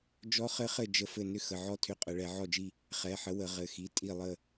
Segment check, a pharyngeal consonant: present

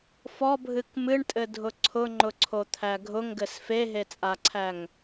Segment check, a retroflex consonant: present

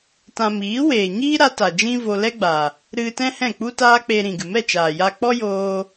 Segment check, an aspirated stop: absent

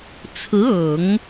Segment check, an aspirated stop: present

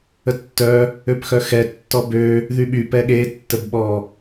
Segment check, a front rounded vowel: present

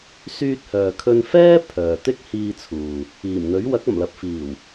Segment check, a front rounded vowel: present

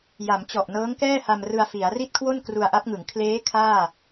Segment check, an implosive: absent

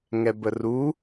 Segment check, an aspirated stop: absent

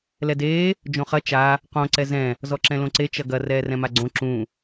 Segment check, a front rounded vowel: absent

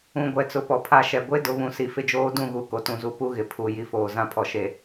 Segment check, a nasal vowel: present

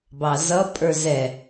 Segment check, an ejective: present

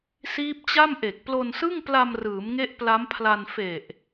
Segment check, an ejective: absent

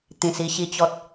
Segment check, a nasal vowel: present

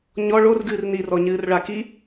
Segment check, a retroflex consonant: present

